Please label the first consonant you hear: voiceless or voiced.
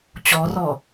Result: voiceless